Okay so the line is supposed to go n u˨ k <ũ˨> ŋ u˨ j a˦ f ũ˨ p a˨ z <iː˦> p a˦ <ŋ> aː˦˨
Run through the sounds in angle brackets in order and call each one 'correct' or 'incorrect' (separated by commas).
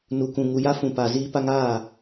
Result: correct, correct, correct